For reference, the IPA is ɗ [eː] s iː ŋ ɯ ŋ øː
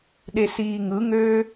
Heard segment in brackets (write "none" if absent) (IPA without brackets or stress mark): e